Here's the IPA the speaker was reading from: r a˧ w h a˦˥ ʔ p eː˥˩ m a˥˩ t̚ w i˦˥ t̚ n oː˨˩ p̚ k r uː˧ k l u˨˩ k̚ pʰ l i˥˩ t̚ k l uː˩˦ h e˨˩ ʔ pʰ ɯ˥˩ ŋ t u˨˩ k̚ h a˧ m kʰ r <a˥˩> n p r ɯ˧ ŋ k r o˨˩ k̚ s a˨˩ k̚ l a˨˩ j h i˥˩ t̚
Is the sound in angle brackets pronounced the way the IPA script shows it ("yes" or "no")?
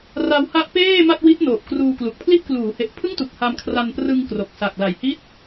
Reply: no